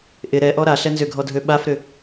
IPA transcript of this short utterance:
ʔ ɪ ɾ ɛ ʔ ɔ ɾ a ɬ ɛ n z ʏ ɡʱ ɔ dʱ ø ɓ a f ɾ ʏ

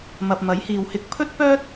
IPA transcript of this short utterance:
m ɐ˨ p̚ m ɐ˨˥ j h iː˨ w h ɪ˧ k̚ pʰ ɵ˥ t̚ p œː˥ t̚

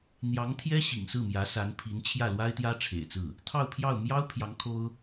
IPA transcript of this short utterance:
n̪ j ɑ˧˥ ŋ t̪ʰ j ɛ˥ ɕ ḭ˨˩ ŋ s ɹ̩˥˩ m j ä˧˥ s a˧˥ n pʰ i˧˥ n t͡ɕʰ j ä˥˩ l w a˥ ɪ̯ t̪ j ä˥ ʈ͡ʂʰ ḛ˨˩ ɪ̯ t͡s ɹ̩˥˩ | t̪ʰ ɑ˥˧ ʊ̯ pʰ j ɑ˥˩ ʊ̯ m j ɑ˥ ʊ̯ pʰ j ɑ˧˥ ŋ kʰ o˥ ʊ̯

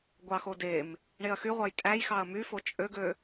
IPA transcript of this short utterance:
ɡʷ ɑ x o d e m | ɳ e ɐ̯ x y ʁʷ ɑ j tʼ æ j x ɑ ɐ̯ m y f o t͡ʃʼ ø ɡ ø

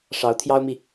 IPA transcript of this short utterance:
ʂ ɑ˧˥ ʊ̯ t̪ʰ j ɑ˥ ʊ̯ m i˨

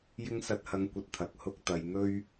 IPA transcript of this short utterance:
j ɪ˥ ŋ s ɐ˧ t̚ h ɐ˨˧ ŋ kʷ ɐ˨ t̚ t̪ʰ ɐ˨ k̚ h ʊ˥ k̚ t̪ ɐ˨˧ j n̪ ɵ˥ ɥ

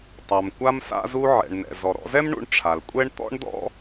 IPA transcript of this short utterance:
tˤ a˩ m kʷ a˧ m s a̰˧ z u˧ ʕ ɛ̰˩ ɳ n ɛ̰˩ z ɔ˩ ɾ ɔ̰˧ z ɛ˥ m ɳ ṵ˧ ɳ ʈ͡ʂʰ a˩ l kʷʼ ɛ˥ ɳ t̪ ɔ̰˥ ɳ d ɔ̰˥

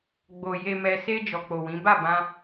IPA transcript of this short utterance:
ɡ͡b o˨ j e˨ m ɛ˨ s e˧ d͡ʒ ɔ˨ k͡p o˨ w ĩ˨˦ b a˦˨ b ã˧

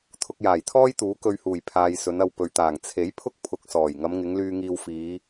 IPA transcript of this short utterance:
t̪ʰ ʊ˧ k̚ j aː˨˩ j t̪ʰ ɔː˥ j t̪ uː˨˥ k ɵ˧ ɥ h uː˨˩ j pʰ aː˨ j s ɵ˨˧ n ɐ˧ w p ɵ˨ ɥ t̪ aː˨˩ ŋ t͡sʰ e˨˥ j pʰ ʊ˥ k̚ pʰ ʊ˧ k̚ s ɔː˨˩ j ŋ ɐ˨˧ m ŋ ɪ˨˧ ŋ l yː˧ ŋ iː˧ w f iː˨˧

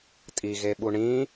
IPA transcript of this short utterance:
tʼ i ɣ e ɓ u ɳ ĩ

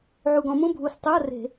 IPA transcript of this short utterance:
ʕ u˨˩ ɡ ɔ̃˧˩˧ m ũ˧˥˧ bʱ u˨˩ s tˤ ø˧˥˧ ɐ̯ r e̤˧˩˧

